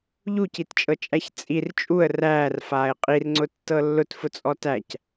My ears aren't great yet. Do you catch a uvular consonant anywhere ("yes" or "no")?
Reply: yes